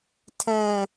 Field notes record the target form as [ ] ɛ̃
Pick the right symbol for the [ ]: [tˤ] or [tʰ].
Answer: tʰ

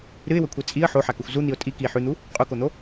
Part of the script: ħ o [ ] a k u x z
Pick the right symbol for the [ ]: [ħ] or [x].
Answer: ħ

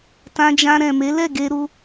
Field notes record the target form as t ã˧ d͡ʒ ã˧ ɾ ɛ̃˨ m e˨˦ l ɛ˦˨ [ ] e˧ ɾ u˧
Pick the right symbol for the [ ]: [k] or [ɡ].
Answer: ɡ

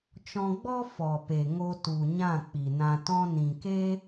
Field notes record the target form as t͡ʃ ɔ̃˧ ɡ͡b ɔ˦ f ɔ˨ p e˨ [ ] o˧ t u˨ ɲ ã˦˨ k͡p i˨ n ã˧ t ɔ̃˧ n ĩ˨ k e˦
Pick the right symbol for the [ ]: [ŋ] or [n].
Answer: ŋ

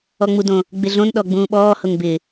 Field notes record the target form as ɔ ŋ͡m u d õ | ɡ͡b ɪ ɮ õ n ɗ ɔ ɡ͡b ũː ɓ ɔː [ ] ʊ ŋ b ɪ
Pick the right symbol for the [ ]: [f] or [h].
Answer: h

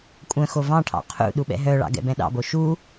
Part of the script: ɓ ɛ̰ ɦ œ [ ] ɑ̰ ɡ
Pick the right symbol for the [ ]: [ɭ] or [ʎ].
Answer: ɭ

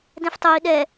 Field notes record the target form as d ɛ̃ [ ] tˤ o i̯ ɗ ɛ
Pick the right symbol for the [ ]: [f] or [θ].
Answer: f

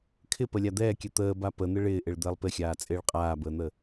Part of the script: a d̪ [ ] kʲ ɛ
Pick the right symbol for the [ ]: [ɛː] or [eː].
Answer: ɛː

